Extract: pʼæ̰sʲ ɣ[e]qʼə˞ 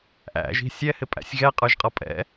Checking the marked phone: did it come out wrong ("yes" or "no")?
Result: yes